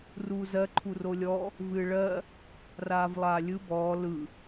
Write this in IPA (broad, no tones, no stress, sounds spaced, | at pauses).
r uː z ɜ ǃʰ u r o lʲ ɔ | v ɨː ɭ ɜ | r aː v lˠ aː lʲ ɯ b ɔː l ɯ